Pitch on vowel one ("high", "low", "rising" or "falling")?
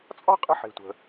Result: high